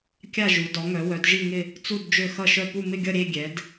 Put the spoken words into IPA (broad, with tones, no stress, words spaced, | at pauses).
kʲa˥˧ʒu˨˦ dɔ˨˦ŋœ˨˦wœ˨˦d ʒi˥˧ŋɪ˥˧ | t͡su˥˧d d͡ʒø˥˧xʌ˥˧ʃœ˥˧ pu˥˧mɪ˥˧ɡʲʌ˥˧ ɾʲe˥˧ ɡʲɛ˨˦d